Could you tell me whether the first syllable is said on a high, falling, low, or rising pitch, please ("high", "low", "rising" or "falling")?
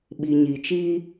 low